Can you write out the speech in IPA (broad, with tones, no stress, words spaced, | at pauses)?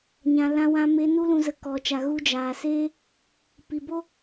ɲã˨lã˧wã˧ me˧ nu˦lũ˧ zə˧kɔ˧t͡ʃa˧ ɣu˧d͡ʒaː˨seː˦ | pi˨bo˦